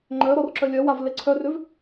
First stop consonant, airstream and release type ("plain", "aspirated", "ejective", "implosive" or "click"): click